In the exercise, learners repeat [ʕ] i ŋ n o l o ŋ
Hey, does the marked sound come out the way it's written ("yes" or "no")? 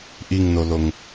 no